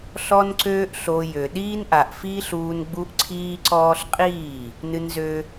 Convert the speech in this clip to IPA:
ɬ ɔ˦ n ǀ øː˦ ʔ ɬ o˧ j ø˨ ɗ iː˦ n ʔ a˨ ʔ f iː˦ ɬ uː˧ n ɡ͡b u˦ ʔ ǀʰ iː˦ ǀ ɔː˦ ɬ qʼ iː˦˨ | n ɨ˧ n z ø˦

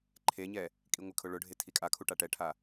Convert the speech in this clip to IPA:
ǃʰ e ɲ ɛ | kʼ i ŋʷ ɪ kʰ ʊ ɭ ʊ ɖʱ e tʰ i kʼ a kʰ u ʈ a ʈ ɛ ʈʰ a

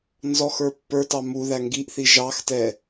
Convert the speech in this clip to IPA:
n z ɔ x ə˞ pː ə˞ t ɑ m u ð æ ŋ ɡ i ʔ θ i ʒ ɑ x t ɛ

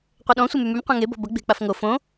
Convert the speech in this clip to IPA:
qʷ e ɗ ɔ̃ sʷ e m y m y m qʷ ɛ̃ ŋ e b ɔ̤ b ɐ ɡ͡b e̤ k͡p a f ŋ o f õ

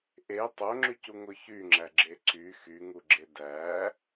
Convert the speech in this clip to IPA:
ʔ e tˤ o ŋ͡ǁ y c u ŋ o ç y ŋ͡ǁ æ ɡ͡ǁ e ǀ y x y ŋ u ɡ͡ǁ e d æ

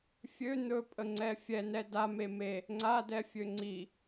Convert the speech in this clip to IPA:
fʲ ø n̪ ɵ pʼ ə ŋ͡ǀ ɛ fʲ ɛ n ɛ d a m e m e | ŋ͡ǀ a d ɛ fʲ ø ŋ͡ǀ i

